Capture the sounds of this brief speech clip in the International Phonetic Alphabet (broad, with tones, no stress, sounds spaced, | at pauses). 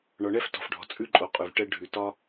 ɳ ɒ˨ ɳ ɛ˦ f t ɔ̤˨ f ɖʱ ɔ̤˨ t͡sʼ ʉ˦ ǃʼ o˨ qʼ ʉ˨ v ʈ ɛ˦ ɖʱ ʉ˨ t ɒ˦